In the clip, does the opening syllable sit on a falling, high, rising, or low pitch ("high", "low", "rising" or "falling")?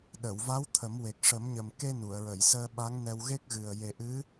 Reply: low